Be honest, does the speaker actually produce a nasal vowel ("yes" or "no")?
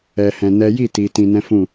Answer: yes